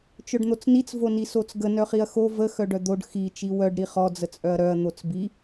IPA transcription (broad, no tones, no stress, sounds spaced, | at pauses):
t͡ʃ œ ɖ n̪ o t͡s n i t͡s v o n i s o t͡s ɡ ə n œ χ i ɐ̯ x o v ə x œ ɖ œ d̪ o ɖ x i t͡ʃ i w œ ɖ ɾ i χ ɔ d͡z ə t͡sʼ œ ɐ̯ ɾ œ ɐ̯ n̪ o t͡s b i